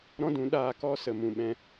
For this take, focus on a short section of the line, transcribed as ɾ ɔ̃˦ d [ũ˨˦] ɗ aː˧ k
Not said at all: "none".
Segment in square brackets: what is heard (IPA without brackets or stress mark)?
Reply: ũ˨˦